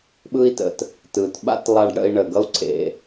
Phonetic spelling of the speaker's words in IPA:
ɓɯ˥i̯tə̰˩t | tɯ˩tɓa̰˥tlˠa˧ɖɽə̰˧i̯ ɳə˩ɡʌ˥u̯ǀʰḛ˩

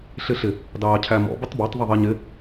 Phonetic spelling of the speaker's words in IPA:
ɬɪɬɪ | dɑːcʰæmɔ̰ bətˤbɑtˤ ðˤəðˤiɲɪ

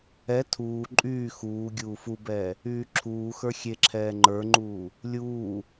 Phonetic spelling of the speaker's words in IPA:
ɛ tʰuː ǃʼyː xuː ɡʲuːfubɛː | yːǁʰuːxə˞ xʲeǁʰɛː ŋ͡ǃə˞ŋ͡ǃuː | lʲuː

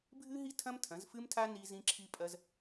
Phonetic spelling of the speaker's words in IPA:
bʱɨ˥ɦi˥ tʰɐ̃˥mtʰɐ̃˨˥zfɨ˥mtʰa˥ ni˥zĩ˥ǁʰi˥pʼɐ˥z

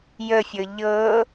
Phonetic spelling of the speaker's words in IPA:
jəfʲɤ ʎɤ

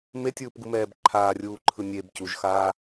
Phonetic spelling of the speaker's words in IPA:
metʲɯːpɡumɛːb ǃʰaːrʲuːǃʰɯ nʲeb cuʒxaː

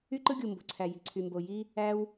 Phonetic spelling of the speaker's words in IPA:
y˥ǃɯ˥ɡʲu˩ mbo̤˩ǀʰæ˩ ji̤˩ǀʰy˩mbo˩ ji˥ | æ˥w

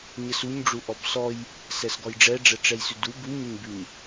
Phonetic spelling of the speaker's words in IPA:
ɲəsuɲɖ͡ʐu ʔɔbsɔj | sɛsɡɔjɖ͡ʐɛɖ͡ʐɛ ʈ͡ʂɛjsʉdu buɲəɲbʉɲ

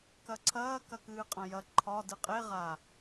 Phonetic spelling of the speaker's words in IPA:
kɐǀʰɐː kɐkɨːqʼɐ̃jɐ ǃʰɒ dɨqʼe ʁa

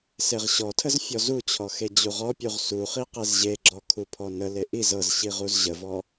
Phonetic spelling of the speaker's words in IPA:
seʁɕɔtʰəz fʲɔzut͡ɕʰɔ xed͡ʑuʁɔpʲuʁ suχi qezʑeɡ͡ǁɔ kʰupʰɔnəle ʔiz ɤzɕi ʁuzʑəvɔ

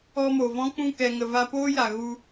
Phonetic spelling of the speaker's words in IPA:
ɔ˧mo˨vɔ̃˦k͡pũ˦˨ kɛ˨ŋə˨va˧ poː˦ja˨ ɣu˧

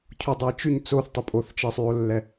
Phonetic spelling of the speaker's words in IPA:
cʰudˤɛjt͡ʃyɲ t͡soθtˤi pʼoθt͡ʃisˤyo̯lːɛ

